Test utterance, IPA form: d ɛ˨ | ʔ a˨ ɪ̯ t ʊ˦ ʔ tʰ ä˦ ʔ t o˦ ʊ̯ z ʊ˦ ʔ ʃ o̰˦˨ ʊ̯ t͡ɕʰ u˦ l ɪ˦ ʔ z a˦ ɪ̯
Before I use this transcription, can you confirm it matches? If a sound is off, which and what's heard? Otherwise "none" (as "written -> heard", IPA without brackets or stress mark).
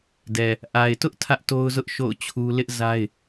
none